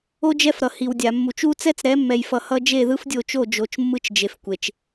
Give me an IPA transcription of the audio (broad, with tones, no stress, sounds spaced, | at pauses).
o˦ d͡ʒ ɛ˦ f ɾ ʌ˨ h i˨ w dʲ a˨ mː u˨ t͡ʃ u˦ t͡s ɛ˦ t͡s ɾ ɛ˨˦ mː ɛ˨ j f ʌ˨ h ʌ˦ d͡ʒ e˦˨ ð ɯ˦ f dʲ o˦˨ t͡ʃ o˦˨ d͡ʒ o˨˦ t͡ʃ mː ɯ˦ t͡ʃ d͡ʒ e˨ f kʷ e˨ t͡ʃ